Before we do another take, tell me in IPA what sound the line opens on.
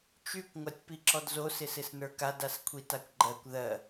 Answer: t͡ʃ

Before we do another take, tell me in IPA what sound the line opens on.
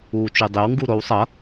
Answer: uː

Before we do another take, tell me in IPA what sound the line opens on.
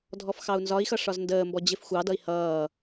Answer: dʱ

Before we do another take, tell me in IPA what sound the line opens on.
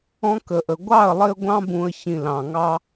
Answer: ɔ̃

